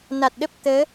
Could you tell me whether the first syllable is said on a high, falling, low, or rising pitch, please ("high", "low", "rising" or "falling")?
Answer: low